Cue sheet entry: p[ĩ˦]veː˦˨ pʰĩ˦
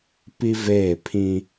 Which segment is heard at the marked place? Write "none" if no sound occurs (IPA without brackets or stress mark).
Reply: i˦